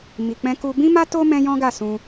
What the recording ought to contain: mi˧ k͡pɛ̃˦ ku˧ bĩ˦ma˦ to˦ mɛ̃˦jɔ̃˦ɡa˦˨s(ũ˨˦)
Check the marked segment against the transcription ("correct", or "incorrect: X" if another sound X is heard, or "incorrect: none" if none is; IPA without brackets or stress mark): incorrect: ũ˧